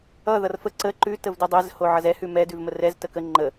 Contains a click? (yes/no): yes